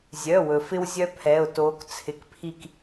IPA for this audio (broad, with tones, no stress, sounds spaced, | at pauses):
zʲ œ˩˧˩ w ɵ˩ f ɪ˥ w zʲ œ˥ pʰ ɛ˩˧˩ ʊ̯ t oː˨˦ k t͡sʰ ɪ˩˧˩ k pʰ i˦˨ k